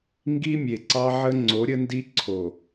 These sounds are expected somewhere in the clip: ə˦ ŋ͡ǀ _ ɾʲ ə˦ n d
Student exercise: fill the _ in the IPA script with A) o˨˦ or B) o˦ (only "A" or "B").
A